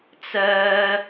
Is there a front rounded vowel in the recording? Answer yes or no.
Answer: yes